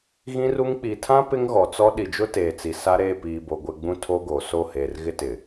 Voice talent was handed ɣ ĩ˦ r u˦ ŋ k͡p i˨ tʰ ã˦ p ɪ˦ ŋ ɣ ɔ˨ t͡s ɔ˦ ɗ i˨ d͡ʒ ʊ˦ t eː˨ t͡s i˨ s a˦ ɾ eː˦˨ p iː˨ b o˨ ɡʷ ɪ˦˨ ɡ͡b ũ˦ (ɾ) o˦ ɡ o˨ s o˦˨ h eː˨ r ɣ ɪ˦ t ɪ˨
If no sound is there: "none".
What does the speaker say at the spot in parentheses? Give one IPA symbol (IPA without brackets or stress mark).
tʰ